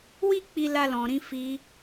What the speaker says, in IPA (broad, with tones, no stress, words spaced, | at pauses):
wi˦ k͡pi˦la˦lɔ̃˧ɾĩ˦ fi˧